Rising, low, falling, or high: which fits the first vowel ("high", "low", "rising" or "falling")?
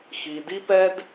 high